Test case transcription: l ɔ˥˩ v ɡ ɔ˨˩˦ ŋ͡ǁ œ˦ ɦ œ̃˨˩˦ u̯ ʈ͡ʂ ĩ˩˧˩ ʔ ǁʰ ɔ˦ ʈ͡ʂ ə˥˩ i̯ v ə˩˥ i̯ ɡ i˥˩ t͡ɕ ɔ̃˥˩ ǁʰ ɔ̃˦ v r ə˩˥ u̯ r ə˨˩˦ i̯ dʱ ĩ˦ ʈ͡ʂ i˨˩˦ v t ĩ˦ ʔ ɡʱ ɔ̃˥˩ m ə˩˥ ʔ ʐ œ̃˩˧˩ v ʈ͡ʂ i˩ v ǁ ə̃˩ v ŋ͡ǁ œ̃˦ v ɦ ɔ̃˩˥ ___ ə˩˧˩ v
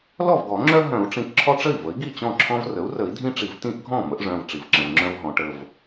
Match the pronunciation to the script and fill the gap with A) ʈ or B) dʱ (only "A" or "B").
A